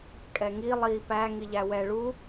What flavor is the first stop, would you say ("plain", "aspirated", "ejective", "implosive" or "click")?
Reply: ejective